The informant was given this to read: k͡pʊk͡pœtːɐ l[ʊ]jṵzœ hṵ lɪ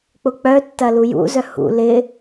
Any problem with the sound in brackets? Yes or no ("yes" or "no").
yes